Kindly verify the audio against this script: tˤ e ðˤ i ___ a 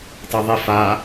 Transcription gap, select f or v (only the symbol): f